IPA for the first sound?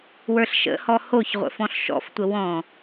w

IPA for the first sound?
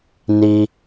n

